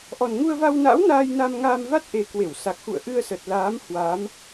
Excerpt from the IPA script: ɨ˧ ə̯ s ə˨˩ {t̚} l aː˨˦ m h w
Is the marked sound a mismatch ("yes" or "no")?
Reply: no